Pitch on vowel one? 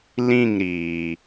falling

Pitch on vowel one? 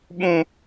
high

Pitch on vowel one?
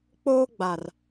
high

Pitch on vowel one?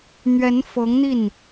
rising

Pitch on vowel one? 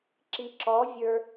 low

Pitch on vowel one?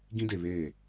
high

